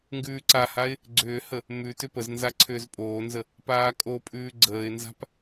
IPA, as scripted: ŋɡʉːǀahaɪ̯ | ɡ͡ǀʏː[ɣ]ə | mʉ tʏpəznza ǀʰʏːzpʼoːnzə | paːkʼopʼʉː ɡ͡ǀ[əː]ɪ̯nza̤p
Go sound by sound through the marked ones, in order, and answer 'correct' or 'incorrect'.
incorrect: h, correct

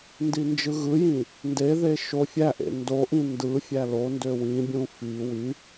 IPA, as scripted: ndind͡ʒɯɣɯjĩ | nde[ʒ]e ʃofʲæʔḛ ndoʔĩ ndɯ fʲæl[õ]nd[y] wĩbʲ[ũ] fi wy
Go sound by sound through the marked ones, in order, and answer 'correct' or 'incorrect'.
incorrect: ð, incorrect: o, incorrect: ø, correct

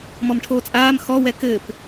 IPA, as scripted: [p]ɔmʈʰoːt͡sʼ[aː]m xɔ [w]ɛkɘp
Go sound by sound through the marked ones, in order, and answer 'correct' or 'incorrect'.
incorrect: m, correct, correct

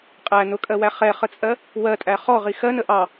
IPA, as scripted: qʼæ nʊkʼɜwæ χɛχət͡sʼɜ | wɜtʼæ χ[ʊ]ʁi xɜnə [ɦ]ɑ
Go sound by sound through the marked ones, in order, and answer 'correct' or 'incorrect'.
incorrect: ɔ, incorrect: ʔ

